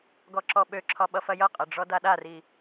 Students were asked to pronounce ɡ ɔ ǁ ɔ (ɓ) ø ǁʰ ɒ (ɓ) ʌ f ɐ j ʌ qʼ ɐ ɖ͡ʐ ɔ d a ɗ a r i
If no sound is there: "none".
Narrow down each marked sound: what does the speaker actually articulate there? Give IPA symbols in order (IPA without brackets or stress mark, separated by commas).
ɓ, ɓ